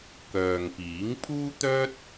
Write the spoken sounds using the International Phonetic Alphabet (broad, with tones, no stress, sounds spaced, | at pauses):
k œː˨ ŋ p iː˨˥ ŋ pʰ uː˥ t̪ œː˥ t̚